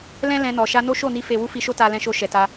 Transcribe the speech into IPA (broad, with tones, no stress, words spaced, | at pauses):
lɛ̃˦ lɛ̃˧nɔ˨ ʃa˧no˦ʃo˦˨ni˧ fe˦ wu˦fi˧ʃo˦ ta˧lɛ̃˧ʃo˧ ʃɛ˨ta˧